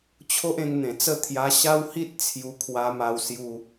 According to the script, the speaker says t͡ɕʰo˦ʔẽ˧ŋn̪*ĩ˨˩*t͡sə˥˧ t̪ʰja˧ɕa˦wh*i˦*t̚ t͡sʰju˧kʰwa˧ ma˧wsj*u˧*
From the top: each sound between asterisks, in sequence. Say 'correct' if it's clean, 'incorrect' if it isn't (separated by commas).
incorrect, correct, correct